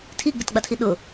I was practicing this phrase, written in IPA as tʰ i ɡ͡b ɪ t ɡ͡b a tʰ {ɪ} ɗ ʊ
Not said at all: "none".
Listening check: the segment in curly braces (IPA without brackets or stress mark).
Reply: i